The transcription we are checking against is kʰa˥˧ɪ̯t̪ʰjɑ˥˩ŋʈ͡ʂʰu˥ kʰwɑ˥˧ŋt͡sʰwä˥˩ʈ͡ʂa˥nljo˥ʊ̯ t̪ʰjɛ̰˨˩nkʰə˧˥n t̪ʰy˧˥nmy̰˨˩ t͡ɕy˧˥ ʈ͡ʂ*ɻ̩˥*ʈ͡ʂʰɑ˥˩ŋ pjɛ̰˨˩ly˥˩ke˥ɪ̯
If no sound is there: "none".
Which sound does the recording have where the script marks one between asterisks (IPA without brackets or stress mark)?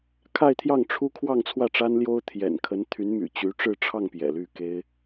ɻ̩˥˧